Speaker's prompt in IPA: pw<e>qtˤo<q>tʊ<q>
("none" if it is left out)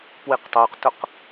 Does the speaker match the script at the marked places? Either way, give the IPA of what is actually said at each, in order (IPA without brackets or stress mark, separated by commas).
i, q, q